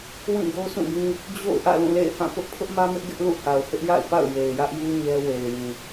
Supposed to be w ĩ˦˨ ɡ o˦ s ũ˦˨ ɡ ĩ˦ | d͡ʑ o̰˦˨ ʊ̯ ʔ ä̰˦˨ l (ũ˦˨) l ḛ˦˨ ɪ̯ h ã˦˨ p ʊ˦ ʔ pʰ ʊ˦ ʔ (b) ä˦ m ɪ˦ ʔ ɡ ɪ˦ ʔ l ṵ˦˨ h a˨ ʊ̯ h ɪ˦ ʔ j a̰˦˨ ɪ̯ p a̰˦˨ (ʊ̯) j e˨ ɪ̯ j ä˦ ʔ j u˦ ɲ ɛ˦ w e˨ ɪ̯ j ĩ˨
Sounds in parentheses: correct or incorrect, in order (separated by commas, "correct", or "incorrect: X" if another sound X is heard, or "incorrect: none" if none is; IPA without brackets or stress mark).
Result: correct, incorrect: m, correct